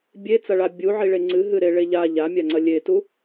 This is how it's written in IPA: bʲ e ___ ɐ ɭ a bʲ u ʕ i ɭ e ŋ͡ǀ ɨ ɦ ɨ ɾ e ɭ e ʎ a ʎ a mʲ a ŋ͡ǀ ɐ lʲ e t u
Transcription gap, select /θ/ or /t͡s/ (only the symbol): t͡s